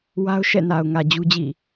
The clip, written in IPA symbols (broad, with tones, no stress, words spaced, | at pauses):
wa˦ʊ̯ʃɛ̰˦˨ na˨ʊ̯ŋä˨ d͡ʑu˦d͡ʑḭ˦˨